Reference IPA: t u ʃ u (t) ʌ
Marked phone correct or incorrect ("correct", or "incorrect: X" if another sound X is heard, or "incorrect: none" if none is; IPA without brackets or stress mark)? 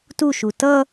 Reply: correct